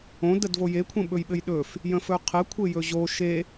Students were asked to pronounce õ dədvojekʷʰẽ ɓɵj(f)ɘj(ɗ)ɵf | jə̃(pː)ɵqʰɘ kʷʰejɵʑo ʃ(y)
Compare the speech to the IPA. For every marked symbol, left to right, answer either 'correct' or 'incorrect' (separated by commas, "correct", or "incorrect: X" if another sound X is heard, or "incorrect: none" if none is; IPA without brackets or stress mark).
incorrect: ɓ, correct, incorrect: f, incorrect: e